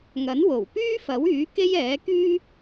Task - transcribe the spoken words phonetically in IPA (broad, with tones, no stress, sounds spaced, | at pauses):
ŋ ɐ˨˥ n w o˨˩ w p yː˥ f ɐ˨˥ w yː˨˥ k e˥ j ɛː˨˥ k yː˥